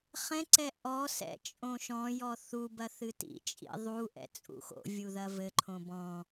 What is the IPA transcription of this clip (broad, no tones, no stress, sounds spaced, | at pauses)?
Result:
χ ɛ̃ ǀ ɛ ʔ ɔ s ɛ̰ t͡ʃʼ õ ʃ ɔ̃ j ɔ θ u b ɐ θ ɨ t ḭ t͡ʃʼ ḭ ðˤ u ʔ ɛ̰ t͡sʼ ṵ x o̰ vʲ u ð ɐ v ɘ ǃʰ õ b ɔ̃